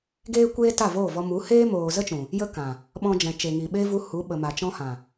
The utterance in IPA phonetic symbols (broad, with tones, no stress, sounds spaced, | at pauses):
ɡ eː˦ kʷ eː˦ t a˦˨ v oː˦˨ v ɔ˧ m u˨˦ h eː˦ m oː˨ z ə˦ t͡ʃ ũ˨ | j ə˦ k ã˨ | ɓ ɔ̃˧ d͡ʒ ɛ̃˨ t͡ʃ e˨ ŋ i˨ ɓ e˦ v u˧ h u˨˦ ɓ ə˨ m a˨ t͡ʃ ɔ̃˧ h ã˨